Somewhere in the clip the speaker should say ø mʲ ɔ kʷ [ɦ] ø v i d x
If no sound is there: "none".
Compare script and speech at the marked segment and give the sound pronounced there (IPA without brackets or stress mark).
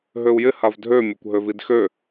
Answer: ɦ